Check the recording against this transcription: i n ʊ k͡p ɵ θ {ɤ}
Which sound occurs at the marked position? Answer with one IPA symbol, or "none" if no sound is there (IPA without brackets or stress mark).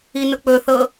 ɤ